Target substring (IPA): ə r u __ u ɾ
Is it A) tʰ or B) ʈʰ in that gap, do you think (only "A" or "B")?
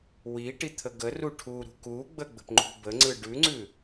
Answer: B